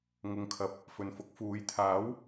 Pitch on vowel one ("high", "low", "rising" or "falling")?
low